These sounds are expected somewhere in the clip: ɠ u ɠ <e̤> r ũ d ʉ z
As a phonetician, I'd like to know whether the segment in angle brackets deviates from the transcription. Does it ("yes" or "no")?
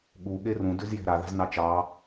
yes